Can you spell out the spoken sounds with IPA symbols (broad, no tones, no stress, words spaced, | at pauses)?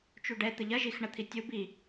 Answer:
t͡ʃuɖɛ t̪əʎɐ ʒix ɳɐt̪ʰitʲub i